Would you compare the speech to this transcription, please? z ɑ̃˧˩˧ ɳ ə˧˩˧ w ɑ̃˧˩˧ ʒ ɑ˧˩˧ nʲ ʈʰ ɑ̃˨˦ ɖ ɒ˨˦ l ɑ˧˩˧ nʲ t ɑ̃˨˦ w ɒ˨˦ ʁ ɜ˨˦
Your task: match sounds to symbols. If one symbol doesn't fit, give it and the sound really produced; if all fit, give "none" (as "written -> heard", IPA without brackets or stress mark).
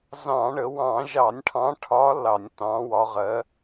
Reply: ɖ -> ʈʰ